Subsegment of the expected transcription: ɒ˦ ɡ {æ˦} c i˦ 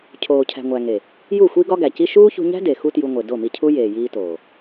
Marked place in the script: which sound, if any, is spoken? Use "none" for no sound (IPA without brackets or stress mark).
æ˨